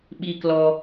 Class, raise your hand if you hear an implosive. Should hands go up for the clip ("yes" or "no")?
yes